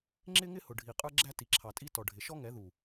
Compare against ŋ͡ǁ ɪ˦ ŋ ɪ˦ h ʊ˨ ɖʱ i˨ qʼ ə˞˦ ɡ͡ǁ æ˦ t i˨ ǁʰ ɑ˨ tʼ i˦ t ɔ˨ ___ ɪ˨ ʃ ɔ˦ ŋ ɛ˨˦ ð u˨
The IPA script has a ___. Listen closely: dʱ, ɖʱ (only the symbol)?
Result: ɖʱ